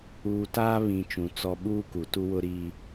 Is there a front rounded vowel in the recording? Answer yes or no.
no